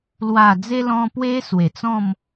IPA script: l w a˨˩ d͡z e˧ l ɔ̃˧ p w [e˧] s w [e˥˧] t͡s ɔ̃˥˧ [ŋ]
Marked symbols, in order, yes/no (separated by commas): no, no, no